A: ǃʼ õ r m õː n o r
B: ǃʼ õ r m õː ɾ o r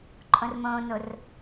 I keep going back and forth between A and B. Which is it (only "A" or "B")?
A